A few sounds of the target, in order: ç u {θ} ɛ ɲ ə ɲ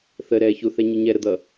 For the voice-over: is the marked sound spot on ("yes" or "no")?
yes